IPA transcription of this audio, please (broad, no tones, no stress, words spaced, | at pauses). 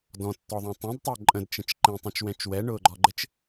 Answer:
dɔ̃tːɔðˤũ tˤɛ̃dtˤʊː ǃʼə̃dt͡ʃə̃t͡ʃ ǃẽtˤõt͡ʃwɛ̃t͡ʃ wɛɳʊːɡ͡ǃɔɡ͡ǃɘt͡ʃ